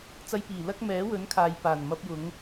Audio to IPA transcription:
t͡s ɐ˧ j p iː˨˩ l ɐ˥ k̚ m ɛː˨˥ w ɵ˨˥ n kʰ aː˨ j p aː˨˩ n m ɐ˧ p̚ j ʊ˨˧ ŋ

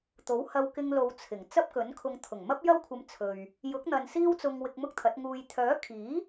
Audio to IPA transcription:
t̪ o˨˥ w h ɐ˧ w k ɪ˧ ŋ l o˨˧ w t͡sʰ ɪ˨˩ ŋ t͡s ɐ˥ p̚ k ɵ˨˥ n kʰ ʊ˧ ŋ t̪ʰ ʊ˨˩ ŋ m ɐ˥ p̚ j ɐ˥ w kʷʰ ɐ˧ m t͡sʰ ɵ˨ ɥ | j ʊ˨˥ k̚ n̪ ɐ˨ n s iː˥ w t͡s ʊ˧ ŋ w ɪ˧ k̚ m ʊ˥ k̚ t̪ʰ ɐ˨˥ t̚ ŋ uː˨ j t̪ʰ œː˨˥ kʰ iː˨˥

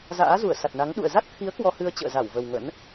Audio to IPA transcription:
z a̰ː˧˥ z u˧˩ ə̯ s a˨˩ t̚ n a˨˦ ŋ ɗ ṵ˧˨ ə̯ z a˦˥ t̚ t̪ʰ i˨˦ ə̯ k w ɔ˧ h ɨ˧ ə̯ t͡ɕ ə̰ː˧˨ z a˧˩ w v ə˨˩ w ŋ ə̰˧˥ n

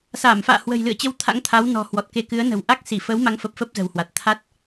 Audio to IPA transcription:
s aː˧˩ m f a̰ː˧˨ h w ə̤˨˩ j l ɨ̰˧˨ ə̯ t͡ɕ ə˧ w t̪ʰ a̰˧˥ ŋ t̪ʰ a˨˦ w n ɔ̤˨˩ h w ɔ˨˩ t̚ k e˧ k ɨ˨˦ ə̯ n ə̤˨˩ w ʔ a˦˥ k̚ s i˧˩ f ə˨˦ w m a˨˦ ŋ f ə˨˩ p̚ f ə˦˥ p̚ z ə̤˨˩ w h w a˨˩ t̚ t̪ʰ a˦˥ t̚

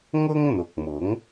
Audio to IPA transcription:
ŋ ʊ˥ ŋ n̪ ʊ˨ k̚ m ʊ˨˥ ŋ

